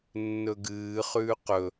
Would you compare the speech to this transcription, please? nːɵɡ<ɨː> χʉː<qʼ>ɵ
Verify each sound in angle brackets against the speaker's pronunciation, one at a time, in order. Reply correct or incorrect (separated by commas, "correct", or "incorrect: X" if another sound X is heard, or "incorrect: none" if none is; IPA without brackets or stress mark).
correct, incorrect: q